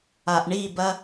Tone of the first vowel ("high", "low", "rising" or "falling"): low